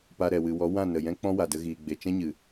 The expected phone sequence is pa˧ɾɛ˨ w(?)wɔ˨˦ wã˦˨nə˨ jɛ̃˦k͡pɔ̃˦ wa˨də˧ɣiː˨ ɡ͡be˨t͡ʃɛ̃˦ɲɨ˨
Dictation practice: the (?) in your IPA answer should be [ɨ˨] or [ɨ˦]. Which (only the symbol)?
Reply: ɨ˨